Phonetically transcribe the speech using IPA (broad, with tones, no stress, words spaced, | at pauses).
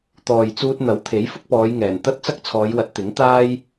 t̪ɔː˨jt͡suː˧t̚n̪ɐ˨˥w t̪ʰe˨˥jfʊ˥k̚pɔː˨˧jŋɛː˨˩n t̪ɐ˥t̚t͡sɐ˥k̚t͡sʰɔː˨˧jwɐ˨˥t̚ t̪ɪ˨˥ŋt̪aː˥j